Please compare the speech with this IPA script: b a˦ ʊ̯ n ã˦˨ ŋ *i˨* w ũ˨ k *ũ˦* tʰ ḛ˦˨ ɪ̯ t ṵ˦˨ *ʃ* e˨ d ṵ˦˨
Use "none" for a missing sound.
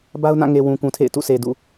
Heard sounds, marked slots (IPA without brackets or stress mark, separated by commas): e˨, ũ˨, s